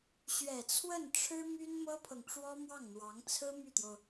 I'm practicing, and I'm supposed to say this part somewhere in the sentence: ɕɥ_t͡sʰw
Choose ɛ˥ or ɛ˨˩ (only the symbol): ɛ˨˩